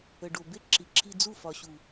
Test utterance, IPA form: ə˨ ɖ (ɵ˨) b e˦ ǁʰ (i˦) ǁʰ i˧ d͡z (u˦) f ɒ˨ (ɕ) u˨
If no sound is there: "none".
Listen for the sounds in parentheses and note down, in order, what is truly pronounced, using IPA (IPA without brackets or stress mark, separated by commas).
o˨, i˨, u˦˨, ɕ